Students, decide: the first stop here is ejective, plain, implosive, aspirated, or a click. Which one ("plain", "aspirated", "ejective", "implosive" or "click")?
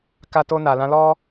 plain